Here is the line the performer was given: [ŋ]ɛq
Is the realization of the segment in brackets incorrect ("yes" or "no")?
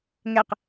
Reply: no